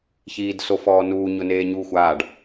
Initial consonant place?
palatal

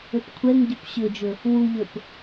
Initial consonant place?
labial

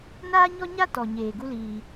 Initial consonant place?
alveolar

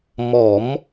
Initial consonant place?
labial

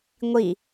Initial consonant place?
velar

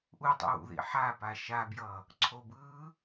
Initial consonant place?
glottal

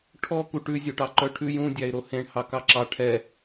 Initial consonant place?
retroflex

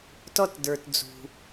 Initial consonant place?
alveolar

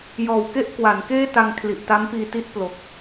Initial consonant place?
palatal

